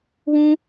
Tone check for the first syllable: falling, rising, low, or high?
high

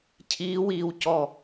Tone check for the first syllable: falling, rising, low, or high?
rising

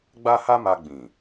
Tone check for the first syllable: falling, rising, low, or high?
high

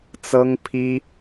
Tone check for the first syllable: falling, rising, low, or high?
high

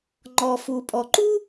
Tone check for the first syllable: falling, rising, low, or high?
low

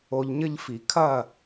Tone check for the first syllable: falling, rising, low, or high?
low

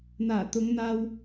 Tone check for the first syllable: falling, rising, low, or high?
low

